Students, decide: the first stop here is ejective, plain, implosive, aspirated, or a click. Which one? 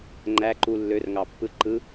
click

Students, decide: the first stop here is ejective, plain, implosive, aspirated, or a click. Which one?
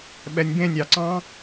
implosive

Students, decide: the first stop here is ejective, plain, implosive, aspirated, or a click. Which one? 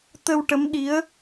plain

